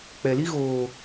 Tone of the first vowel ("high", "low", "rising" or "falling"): low